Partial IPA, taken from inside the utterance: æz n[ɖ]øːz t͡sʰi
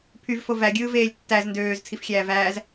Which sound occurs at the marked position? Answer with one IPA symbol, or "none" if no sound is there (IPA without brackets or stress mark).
d